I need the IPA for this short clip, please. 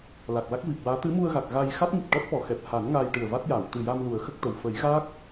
l a˨˩ k̚ l a˦˥ k̚ v i˨˩ p̚ w aː˧˥ t̪ ɨ˧˥ m u˧ ə̯ ɣ a˨˩ k̚ ɣ a˧ j x a˦˥ t̚ ŋ i˨˩ t̚ ʈ ɔ˦˥ t̚ f ɔ˨˩˨ x ɛ˨˩ p̚ h a˨˩˦ n ŋ aː˧ j ʈ ɨ˨˩ ə̯ v a˦˥ t̚ j aː˨˩˨ w t̪ ɨ˨˩ j a˧ m l u˨˩˦ ə̯ x ə˦˥ k̚ t̪ ə˨˩ w f ə˨˩˦ j ɣ aː˦˥ k̚

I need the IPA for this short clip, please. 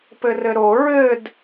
p ɘ r ɘ ɾ o ɹ ɘ d

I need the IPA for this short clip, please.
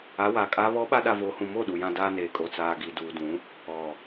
aː˨˦ w aː˨ kʼ aː˦ β ɔ˦ ɓ a˦ ɗ a˨ v oː˨ h ũ˨ m o˦˨ ɗ u˨ j ã˦ d aː˦ n eː˨ kʼ o˨ t͡s aː˨ ɡ i˨ d uː˨ d ũ˨˦ | ɔ˨

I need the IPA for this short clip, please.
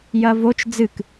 j ɐ v o t͡ʃ d͡z ɨ k

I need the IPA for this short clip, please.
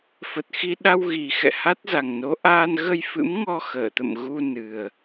f ə˨˩ t̚ x i˧ ɗ a˧ w ɣ i˨˩ x ɛ̰˧˨ h a˦˥ t̚ z a˨˩ ŋ n o˨˦ ʔ aː˧ n ɣ ə˧ j f ɨ̰˧˥ m ŋ ɔ˧ x əː˧˩ t̪ ə̰˧˨ m ɣ u˧ n ɨ˨˩ ə̯

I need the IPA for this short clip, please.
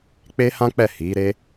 k͡p e˦ h ã˦ k͡p ɛ˦˨ h i˨˦ ɾ e˦

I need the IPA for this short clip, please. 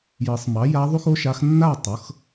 j ɤ˨˩˦ sˤ m ɑ˩˥ j a˧˥ ðˤ u˥ x o˥ ʃ a˧˥ x nː a˥˨ tˤ ɤ˩˥ x

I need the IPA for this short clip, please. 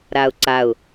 ɾ a ʊ̯ ǀ a ʊ̯

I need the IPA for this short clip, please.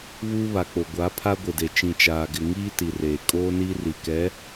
β uː˦ β a˨ k͡p o˨ ɡʷ a˨˦ pʰ a˦ ɡʷ ɪ˨ d e˨ t͡ʃ ĩ˨ t͡ʃ aː˨ ɡ ɪ˨ ŋ iː˦ t i˨ r eː˨ kʼ oː˦ n iː˦ r i˨ k ɛ˨˦

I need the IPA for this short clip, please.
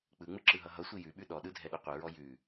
k͡p ɯ ŋ͡m ɯ ǁ ɯ ɦ ʌ ɦ ʌ sʷ i j ʉ ɓ ʉ ɗ ɔ ɗ ɯ dʱ ɛ ɗ ɯ qʷ ɯ ɹ ɔ j ʉ

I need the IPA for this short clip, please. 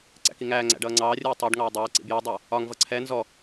ǀ æ̰ k i ŋ æː ŋ͡ǀ æ̰ ɖ ʌː ŋ͡ǀ ɑː rʲ uː tˤ ɜ ɖ ŋ ɑː dˤ ɛː ǀ ḭ b j ɔ dˤ æ | ɒ ŋ v ʌ ǀʰ ɛ n z ɔ

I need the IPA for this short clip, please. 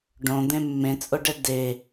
ɖ õ d̪ ẽ mː ẽ t͡sʼ o ɖ ɛ d e

